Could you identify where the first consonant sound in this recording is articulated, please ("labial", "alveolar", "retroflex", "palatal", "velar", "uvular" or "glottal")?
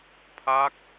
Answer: labial